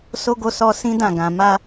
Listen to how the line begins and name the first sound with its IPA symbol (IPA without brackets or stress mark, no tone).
s